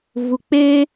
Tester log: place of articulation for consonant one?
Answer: labial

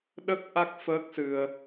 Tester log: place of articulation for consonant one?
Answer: alveolar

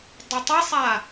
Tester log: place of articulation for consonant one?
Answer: alveolar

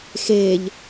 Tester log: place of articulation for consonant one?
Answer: velar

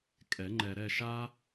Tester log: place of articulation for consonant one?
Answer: velar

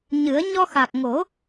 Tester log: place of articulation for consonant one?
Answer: palatal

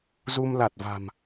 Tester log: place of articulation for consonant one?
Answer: alveolar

